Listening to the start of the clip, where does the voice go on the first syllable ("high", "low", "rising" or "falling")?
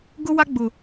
high